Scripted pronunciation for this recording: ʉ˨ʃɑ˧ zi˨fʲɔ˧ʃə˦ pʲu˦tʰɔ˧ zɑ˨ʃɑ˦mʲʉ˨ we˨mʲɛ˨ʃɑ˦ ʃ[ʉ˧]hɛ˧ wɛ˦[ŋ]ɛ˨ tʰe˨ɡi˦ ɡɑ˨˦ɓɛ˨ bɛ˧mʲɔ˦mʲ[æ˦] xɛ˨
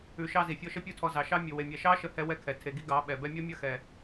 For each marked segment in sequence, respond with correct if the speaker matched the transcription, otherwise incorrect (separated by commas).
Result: incorrect, incorrect, incorrect